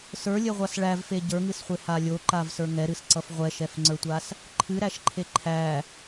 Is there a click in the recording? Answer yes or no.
yes